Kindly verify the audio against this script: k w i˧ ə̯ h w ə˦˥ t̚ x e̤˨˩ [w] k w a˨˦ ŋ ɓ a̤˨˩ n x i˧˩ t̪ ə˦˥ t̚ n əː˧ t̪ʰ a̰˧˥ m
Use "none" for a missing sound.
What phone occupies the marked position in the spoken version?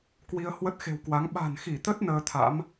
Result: w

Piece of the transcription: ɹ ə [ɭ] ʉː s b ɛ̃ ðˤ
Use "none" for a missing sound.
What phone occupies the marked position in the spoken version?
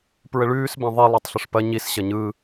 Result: ɭ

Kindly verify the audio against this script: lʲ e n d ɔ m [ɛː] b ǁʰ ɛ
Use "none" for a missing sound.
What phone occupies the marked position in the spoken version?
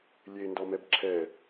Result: ɛ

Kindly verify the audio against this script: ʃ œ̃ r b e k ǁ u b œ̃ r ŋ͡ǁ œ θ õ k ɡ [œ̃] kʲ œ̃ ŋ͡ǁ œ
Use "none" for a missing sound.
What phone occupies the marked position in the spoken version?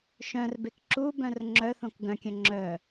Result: œ̃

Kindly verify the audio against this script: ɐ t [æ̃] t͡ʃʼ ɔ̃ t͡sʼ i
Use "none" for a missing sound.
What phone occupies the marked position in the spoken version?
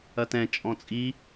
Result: ɛ̃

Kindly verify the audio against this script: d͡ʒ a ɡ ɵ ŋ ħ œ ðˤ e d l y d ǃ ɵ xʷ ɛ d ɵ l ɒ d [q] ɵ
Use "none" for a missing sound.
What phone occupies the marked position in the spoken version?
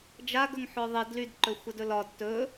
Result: t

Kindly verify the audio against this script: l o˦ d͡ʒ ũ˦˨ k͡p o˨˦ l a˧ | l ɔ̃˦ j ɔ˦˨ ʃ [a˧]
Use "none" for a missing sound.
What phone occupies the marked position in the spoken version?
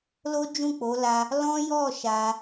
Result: a˧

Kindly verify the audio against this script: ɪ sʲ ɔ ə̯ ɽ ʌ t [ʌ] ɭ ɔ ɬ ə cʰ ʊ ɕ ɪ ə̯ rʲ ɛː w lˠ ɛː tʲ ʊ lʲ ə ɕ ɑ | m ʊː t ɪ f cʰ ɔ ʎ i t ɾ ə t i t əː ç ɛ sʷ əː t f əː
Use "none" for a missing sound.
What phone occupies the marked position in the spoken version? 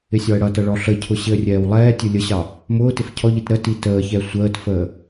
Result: ʌ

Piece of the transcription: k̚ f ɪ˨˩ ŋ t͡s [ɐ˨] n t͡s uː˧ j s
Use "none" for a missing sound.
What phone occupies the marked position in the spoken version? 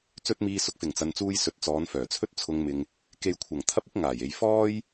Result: ɐ˨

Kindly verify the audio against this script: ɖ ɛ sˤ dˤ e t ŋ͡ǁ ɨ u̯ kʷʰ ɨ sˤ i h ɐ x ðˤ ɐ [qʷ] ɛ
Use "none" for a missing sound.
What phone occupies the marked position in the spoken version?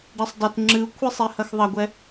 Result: ɡʷ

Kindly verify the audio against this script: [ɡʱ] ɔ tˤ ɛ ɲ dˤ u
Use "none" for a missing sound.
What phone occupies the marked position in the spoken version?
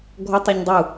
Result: ɡʱ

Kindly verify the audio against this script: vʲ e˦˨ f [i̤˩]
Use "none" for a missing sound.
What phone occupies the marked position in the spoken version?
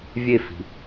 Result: i̤˩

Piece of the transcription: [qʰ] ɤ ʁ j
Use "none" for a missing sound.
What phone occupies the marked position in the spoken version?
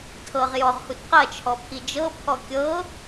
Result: tʰ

